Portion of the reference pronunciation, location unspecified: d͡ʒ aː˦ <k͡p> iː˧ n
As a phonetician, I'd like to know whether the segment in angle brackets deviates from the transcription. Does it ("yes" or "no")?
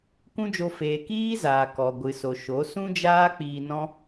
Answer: no